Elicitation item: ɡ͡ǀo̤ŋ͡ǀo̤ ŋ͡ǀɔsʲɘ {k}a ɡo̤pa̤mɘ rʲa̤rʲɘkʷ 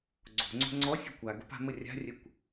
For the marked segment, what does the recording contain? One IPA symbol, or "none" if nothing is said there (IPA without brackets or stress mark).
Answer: kʷ